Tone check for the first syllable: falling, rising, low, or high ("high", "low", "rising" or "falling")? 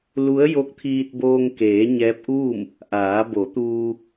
rising